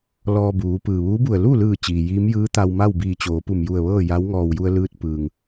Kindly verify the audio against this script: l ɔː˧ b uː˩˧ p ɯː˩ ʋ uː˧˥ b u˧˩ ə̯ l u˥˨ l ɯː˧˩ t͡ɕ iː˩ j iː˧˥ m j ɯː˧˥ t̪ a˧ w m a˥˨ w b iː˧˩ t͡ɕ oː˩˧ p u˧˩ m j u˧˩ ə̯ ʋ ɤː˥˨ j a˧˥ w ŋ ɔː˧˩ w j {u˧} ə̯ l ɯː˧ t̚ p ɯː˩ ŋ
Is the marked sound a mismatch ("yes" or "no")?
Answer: no